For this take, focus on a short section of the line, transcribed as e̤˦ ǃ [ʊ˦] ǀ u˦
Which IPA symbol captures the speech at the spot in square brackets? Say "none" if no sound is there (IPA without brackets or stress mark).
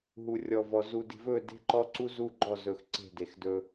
ɔ˦